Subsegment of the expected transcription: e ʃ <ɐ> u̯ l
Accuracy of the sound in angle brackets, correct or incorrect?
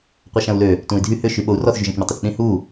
incorrect